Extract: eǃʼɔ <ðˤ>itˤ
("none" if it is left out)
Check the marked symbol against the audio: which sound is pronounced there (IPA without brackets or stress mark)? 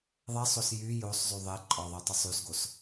ðˤ